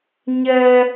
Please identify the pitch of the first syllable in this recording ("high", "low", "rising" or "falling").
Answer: high